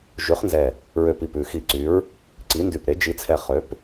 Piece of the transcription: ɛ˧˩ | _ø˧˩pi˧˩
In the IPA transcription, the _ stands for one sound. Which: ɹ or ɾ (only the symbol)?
ɹ